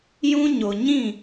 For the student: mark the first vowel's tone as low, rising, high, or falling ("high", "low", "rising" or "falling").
high